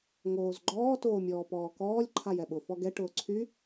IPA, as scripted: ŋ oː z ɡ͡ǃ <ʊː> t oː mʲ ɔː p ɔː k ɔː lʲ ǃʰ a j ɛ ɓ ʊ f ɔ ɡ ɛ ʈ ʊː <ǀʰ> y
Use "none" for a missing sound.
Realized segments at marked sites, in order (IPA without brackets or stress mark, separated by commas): ɔː, ǀʰ